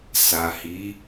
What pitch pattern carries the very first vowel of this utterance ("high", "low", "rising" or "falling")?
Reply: low